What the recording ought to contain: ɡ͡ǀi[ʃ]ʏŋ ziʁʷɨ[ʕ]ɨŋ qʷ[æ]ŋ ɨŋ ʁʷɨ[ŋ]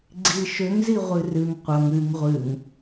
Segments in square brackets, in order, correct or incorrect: correct, incorrect: r, incorrect: ɐ, correct

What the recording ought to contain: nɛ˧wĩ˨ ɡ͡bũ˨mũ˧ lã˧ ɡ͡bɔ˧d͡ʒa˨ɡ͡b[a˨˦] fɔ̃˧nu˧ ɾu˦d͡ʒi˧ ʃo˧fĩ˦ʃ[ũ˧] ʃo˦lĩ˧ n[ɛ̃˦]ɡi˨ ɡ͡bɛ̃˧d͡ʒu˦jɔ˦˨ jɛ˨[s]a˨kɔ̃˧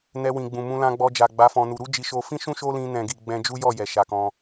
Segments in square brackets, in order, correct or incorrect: correct, incorrect: ũ˦, incorrect: ɛ̃˨, incorrect: ʃ

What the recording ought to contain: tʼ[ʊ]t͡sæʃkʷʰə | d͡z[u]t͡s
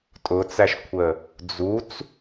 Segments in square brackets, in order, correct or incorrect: correct, correct

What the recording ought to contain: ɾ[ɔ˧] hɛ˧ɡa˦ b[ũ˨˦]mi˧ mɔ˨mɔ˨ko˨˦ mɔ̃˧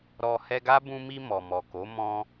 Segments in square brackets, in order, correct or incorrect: incorrect: ɔ˨, incorrect: ũ˧

